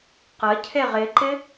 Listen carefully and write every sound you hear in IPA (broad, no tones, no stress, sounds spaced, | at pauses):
q ə cʰ e ʁ ɪ ǃ ɪ